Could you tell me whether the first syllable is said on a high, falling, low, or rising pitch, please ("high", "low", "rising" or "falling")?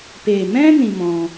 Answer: low